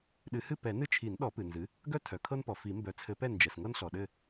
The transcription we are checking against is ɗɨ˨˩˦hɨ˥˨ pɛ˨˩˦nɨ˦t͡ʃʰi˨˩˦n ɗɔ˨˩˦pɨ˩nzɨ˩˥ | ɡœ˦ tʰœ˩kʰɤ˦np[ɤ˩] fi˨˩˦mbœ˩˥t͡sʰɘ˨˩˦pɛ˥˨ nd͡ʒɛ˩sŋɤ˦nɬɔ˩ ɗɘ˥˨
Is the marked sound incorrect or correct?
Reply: incorrect